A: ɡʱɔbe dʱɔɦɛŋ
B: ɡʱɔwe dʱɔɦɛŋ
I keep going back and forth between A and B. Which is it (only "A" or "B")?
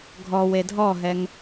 B